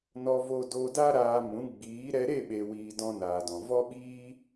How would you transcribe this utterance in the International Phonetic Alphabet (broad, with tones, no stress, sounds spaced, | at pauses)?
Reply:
n ɔ˧ v o˧ d o˧ d a˦ ɾ aː˧ m ũ˨˦ ɡ͡b iː˨˦ ɾ ɛ˧ ɾ e˦˨ ɓ e˨ w iː˨ d ɔ̃˧ n aː˨ d ɔ̃˨ v ɔ˦ ɓ iː˦